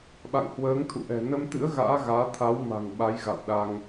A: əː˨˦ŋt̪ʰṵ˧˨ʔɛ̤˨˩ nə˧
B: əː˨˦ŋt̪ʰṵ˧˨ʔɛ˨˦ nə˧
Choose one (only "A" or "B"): A